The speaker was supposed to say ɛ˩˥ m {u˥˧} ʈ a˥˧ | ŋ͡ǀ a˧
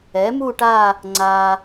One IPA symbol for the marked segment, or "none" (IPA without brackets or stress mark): u˥˧